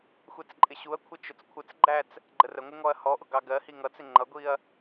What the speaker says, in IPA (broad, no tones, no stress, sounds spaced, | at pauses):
xʷ ɛ t͡s ǃʼ ɪ ɕ u ɐ̯ kʷʰ ə t͡ʃ ʊ t͡s kʷʰ ə t͡s ɡ͡ǃ æ t͡s | ɡ͡ǃ ə r ə ŋʷ ɪ ŋ ɔ ɐ̯ h ɔ ʔ ʊ ɡ ɑ ɡ ɜ h i ŋ ʌ t͡s ɪ ŋ͡ǃ ʌ ɡʷ i ɐ̯